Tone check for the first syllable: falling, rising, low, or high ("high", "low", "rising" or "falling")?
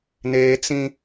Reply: high